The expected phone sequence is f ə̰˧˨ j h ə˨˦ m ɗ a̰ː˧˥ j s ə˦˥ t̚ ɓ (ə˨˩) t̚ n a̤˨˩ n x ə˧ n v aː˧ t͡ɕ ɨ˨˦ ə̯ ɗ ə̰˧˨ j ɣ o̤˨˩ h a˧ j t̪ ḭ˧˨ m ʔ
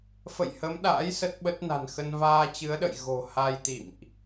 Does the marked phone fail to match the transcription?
yes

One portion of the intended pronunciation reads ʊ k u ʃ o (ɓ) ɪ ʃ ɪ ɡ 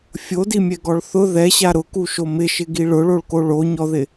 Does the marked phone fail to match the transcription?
yes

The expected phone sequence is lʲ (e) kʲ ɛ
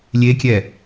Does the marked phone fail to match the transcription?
no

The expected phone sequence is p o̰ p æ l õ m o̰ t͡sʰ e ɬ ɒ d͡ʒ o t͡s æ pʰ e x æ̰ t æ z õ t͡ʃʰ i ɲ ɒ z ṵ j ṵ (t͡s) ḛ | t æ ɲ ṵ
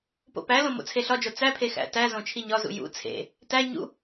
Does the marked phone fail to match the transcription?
yes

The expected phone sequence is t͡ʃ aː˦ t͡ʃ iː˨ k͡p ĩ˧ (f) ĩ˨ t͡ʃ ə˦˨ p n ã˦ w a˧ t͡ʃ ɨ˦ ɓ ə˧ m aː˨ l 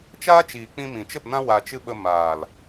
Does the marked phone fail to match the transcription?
yes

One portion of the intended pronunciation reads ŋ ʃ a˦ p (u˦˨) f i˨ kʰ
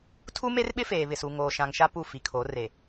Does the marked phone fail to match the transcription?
no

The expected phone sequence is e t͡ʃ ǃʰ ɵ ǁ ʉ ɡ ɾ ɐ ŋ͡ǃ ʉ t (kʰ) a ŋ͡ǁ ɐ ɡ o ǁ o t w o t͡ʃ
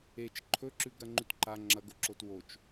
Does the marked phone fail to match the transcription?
yes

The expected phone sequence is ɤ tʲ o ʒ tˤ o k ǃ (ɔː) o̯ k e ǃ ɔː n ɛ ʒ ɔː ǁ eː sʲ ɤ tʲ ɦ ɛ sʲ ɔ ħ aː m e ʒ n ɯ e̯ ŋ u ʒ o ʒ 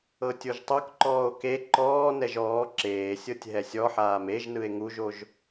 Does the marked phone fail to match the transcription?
no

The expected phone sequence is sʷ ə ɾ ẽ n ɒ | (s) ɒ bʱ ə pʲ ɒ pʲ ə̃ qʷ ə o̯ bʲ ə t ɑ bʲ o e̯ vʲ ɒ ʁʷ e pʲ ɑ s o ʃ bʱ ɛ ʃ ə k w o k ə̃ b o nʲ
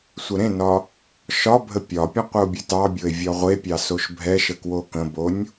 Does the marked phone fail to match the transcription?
yes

